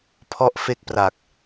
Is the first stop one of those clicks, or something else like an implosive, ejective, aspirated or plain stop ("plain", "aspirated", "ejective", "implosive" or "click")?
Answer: aspirated